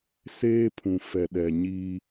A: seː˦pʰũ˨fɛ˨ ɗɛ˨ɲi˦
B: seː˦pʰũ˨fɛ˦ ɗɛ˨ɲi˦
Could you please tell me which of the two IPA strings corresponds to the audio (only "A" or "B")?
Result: A